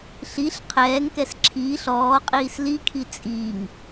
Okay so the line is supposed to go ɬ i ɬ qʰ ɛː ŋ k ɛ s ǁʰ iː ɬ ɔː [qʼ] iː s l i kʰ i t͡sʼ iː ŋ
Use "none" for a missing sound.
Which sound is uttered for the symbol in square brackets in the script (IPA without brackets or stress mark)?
qʼ